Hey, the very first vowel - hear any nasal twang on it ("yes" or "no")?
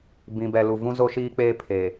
yes